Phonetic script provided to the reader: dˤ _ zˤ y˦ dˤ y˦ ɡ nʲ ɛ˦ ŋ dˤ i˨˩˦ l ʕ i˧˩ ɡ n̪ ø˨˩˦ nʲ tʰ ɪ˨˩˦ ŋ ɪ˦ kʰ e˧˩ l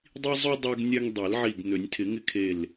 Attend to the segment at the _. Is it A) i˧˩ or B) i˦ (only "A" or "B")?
B